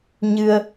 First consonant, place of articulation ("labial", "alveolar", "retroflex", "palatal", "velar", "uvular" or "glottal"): palatal